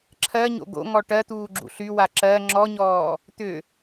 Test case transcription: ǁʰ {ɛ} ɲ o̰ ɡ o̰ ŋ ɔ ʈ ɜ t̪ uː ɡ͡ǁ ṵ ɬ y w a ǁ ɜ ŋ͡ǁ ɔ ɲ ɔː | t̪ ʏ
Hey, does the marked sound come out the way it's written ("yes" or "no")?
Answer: no